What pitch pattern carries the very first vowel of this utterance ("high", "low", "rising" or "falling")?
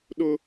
high